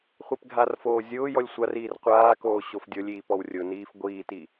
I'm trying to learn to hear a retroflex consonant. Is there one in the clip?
no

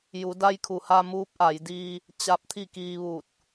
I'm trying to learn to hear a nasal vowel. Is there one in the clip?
no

